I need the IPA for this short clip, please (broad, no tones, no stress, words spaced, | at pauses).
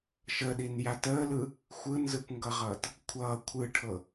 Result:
ʃəɗinjat əːlɯ | xʷɯnzɯkʷŋɡʌʁʌːt | kʷʰʌː kʷʰɯʈʰɤ